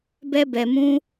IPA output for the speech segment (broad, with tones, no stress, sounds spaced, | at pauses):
b ɛ˦ b ɛ˧ m ũ˦